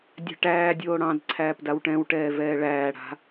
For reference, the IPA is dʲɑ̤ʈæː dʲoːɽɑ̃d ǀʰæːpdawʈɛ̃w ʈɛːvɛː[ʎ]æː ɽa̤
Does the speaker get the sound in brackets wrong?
yes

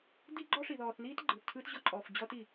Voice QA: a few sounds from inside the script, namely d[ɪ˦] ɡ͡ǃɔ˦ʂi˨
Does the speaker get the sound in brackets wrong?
yes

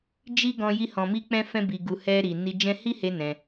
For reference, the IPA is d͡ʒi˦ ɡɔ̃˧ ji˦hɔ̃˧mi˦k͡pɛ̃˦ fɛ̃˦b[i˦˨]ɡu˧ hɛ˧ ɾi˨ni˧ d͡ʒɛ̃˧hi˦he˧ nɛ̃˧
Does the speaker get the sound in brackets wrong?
yes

